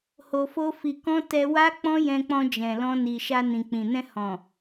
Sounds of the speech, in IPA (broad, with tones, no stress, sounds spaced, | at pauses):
h o˧ f o˦ f i˧ k ɔ̃˦ t ɛ˧ w a˦ k͡p ɔ̃˦ j ɛ̃˧ k͡p ɔ̃˧ d͡ʒ ɛ̃˨ l ɔ̃˧ n i˨ ʃ a˧ n ĩ˨ k͡p ĩ˨ n ɛ̃˧ h ɔ̃˨